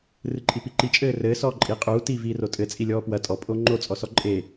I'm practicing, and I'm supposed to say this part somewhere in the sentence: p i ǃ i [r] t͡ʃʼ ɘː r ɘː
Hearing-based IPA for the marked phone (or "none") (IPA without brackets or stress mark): none